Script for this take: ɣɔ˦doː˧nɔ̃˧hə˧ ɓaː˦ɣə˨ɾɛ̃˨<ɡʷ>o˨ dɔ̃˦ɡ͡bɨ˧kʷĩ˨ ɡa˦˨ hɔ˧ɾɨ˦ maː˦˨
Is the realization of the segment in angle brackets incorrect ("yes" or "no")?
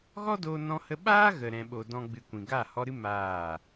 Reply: yes